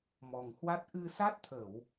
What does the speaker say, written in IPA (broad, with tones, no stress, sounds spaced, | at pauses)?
m ɔ˨˩ ŋ h w a˦˥ t̚ ʔ ɨ˧ s a˦˥ t̚ t̪ʰ ə˧˩˨ w